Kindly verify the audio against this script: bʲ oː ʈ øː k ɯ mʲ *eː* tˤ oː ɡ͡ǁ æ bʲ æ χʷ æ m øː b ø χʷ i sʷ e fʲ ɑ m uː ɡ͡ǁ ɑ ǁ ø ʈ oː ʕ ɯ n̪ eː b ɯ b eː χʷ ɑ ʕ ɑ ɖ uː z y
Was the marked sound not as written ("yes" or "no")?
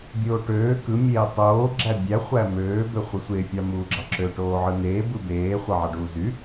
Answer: no